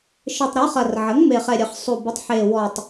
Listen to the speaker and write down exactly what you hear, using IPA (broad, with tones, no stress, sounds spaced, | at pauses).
ʃ ɘ˨˩ tˤ ɾ ɔ˩˥ χ ɐ˨˩ r ʕ ə˩˥ ŋ m e˨˩ χ ɛ˨˩ ɾʲ ɘ˨˩ χ sˤ u˨˩ b u˩˥ tˤ ħ e˨˩ w ɔ˨˩ tˤ